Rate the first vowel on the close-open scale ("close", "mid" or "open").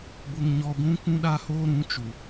close